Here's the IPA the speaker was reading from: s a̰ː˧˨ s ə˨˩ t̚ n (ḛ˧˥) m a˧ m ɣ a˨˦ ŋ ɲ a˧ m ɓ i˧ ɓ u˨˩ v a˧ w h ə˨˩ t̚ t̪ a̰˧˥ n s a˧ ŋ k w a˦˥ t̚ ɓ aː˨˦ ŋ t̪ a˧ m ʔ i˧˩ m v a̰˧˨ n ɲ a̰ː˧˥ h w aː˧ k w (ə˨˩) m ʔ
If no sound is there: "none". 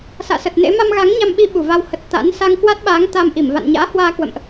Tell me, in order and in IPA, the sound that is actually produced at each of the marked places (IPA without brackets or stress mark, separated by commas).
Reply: ḛ˧˥, ə̰˧˨